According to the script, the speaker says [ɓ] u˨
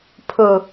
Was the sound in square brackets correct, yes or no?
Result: no